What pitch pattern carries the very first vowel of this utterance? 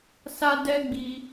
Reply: high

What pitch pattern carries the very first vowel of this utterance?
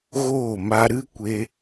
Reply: falling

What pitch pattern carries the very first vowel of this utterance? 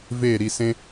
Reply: falling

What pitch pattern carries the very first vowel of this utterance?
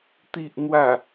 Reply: low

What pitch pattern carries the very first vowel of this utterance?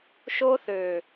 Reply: high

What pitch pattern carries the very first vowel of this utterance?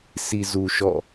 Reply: low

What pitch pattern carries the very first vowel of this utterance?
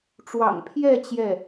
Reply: low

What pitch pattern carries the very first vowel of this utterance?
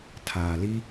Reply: low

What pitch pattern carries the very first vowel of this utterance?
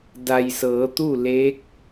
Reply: low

